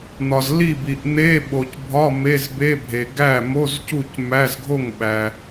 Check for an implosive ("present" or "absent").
present